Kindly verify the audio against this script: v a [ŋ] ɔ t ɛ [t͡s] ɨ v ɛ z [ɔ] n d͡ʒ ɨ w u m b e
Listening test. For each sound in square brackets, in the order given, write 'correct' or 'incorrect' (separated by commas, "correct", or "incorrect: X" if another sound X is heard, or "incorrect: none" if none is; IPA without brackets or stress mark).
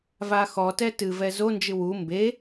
incorrect: x, incorrect: t, incorrect: o